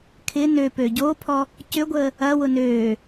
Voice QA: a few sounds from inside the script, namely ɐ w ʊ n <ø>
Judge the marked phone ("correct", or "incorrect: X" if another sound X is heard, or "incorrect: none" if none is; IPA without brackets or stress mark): correct